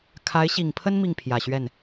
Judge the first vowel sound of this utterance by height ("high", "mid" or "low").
low